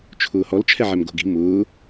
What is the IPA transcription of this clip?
t͡ʃʰ ʊː h ɔ l t͡ʃʰ ɛ ʕ ɛ m ɡ o̤ ɡ i̤ m ʊː

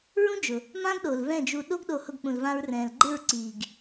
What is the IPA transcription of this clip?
ɹ ũ˦ d͡ʒ ʊ˨ | m ã˦ ɡ ɗ o˨ l v ɛ̃˦˨ d͡ʒ u˧ ɗ o˦ ɡ ɗ o˧ h ʊ˧ ɡ k͡p ũ˨ l v ã˧ ɹ r ɛ̃ː˨ l ɡ͡ǃ ɪ˦˨ ɹ ǀ iː˨ ɡ

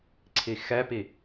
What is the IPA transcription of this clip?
ǀʰ i x ɛ p i

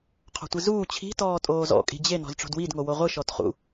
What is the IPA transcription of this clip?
qʰ ɔ̤ tʷ i z uː t͡ɕʰ i̤ t ɔː tʼ oː z ɔ̰ kʼ i̤ d͡ʑ e n ɔ̤ z ʈ͡ʂ o̤ d w i d ŋ o w o ʁʷ ɯ ʃ ɔ t χ ṵ

